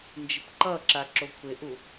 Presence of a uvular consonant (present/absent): absent